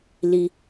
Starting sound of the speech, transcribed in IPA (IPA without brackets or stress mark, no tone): l